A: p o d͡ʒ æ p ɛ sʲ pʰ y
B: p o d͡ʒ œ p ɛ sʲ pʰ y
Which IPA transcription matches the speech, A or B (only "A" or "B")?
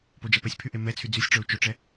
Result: A